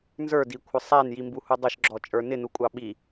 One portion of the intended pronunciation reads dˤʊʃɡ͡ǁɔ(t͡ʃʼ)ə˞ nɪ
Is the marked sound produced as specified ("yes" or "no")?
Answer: yes